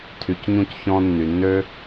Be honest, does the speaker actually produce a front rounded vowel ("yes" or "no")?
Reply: yes